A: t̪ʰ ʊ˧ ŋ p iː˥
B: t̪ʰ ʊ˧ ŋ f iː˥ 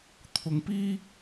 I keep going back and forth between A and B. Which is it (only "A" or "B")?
A